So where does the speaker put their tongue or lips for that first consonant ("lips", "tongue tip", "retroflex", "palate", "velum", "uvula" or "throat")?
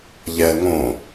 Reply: palate